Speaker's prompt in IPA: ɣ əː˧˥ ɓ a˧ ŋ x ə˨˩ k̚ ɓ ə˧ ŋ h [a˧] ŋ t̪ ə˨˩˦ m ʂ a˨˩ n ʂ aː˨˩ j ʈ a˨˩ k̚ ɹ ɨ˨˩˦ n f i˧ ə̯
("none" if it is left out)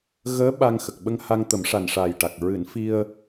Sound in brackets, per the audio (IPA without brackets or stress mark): a˧